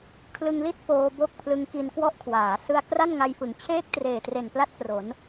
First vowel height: high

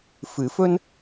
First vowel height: high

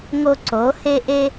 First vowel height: mid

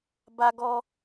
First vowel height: low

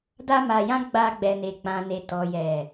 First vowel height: low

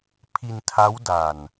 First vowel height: high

